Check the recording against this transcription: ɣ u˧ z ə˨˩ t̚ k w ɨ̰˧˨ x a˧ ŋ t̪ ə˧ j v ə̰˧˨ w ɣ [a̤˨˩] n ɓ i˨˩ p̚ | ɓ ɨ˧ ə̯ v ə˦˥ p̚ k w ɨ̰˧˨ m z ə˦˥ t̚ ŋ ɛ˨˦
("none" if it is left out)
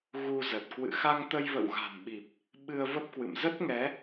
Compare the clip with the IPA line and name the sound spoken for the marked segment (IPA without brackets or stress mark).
a̤˨˩